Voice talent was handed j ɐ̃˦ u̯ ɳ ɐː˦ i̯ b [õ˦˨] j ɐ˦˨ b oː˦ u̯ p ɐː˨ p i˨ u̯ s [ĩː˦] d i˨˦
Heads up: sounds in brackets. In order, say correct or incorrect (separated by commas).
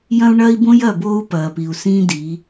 incorrect, correct